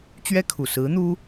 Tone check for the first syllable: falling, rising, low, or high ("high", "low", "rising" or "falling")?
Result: high